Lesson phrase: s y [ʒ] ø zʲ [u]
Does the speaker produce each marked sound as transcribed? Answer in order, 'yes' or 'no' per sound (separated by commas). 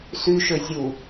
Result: no, yes